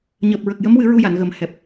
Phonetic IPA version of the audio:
ɲəː˨˩p̚ɹə˨˩k̚jə˧˥mwɨ˨˩˦ ɹu˧ja˨˩˨nɣə˨˩m hɛ˨˩p̚

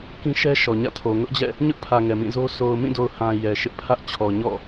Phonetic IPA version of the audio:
kĩ˦ʃɛ˦ ʃɔ˨ɲä̰˦˨tʰo˨ ŋʊ˦ʔd͡ʑɛ̰˦˨ | ɲʊ˦ʔpʰä˨ ŋɛ˨mĩ˦˨zo˦ so˨ʊ̯mĩ˦˨do˨ʊ̯ hã˨ jɛ˨ʃɪ˦ʔpʰä˦ʔ t͡ɕʰɔ˨ɲɔ̰˦˨

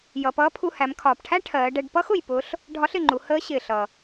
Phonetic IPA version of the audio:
jʌ˩pʌː˧˥ pʰu˧hæ˩˧m kʰɒː˩pʈʰæ˥ ʈʰɜː˩˧ɖɛ˧ɖ pʌ˥x ʊ˩jpʊ˧˥ɬ | ɖʱɒ˧˥ɬɪ˩ŋ͡ǃu˩˧ həː˧˥ ɕɪː˩ɬʌ˩

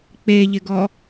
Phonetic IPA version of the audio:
k͡peʎɪɡɔ

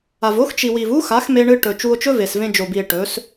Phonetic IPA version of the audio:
a˨v o˦x t͡ʃi˨wi˨vu˦xa˨˦x me˧ɳɨ˧ ʈɵ˨ t͡ʃu˧o̯t͡ʃɵ˦ve˨svẽ˧ d͡ʒo˨bi˨e̯ ʈɵ˨˦s

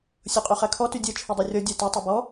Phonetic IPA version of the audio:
sʲoqʼyχækʰɔ tydʲɛ t͡ʃʰydˤɑrʲɔ dʲætæ tˤobɔ

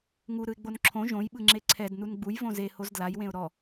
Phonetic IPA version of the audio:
ŋuɾɯɪ̯ ɡ͡bonǁʰõ ʒõjɓɯŋ͡ǁe ǀʰɛd nunɡ͡bujvõ ze hozdlaj wẽʊ̯ɾɔ

